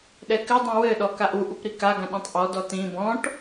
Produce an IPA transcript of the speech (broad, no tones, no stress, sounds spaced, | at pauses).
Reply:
ɗ ɛ k ɘ dˤ ĩ w ɘ ɗ ɔ k a ʔ u ʔ u p ɾ i k a ɡ ã ɗ ɛ̃ tˤ ʔ ɔ d ɔ t ĩ b ɔ̃ ʈ